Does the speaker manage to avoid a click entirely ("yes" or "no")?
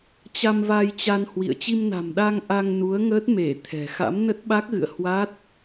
yes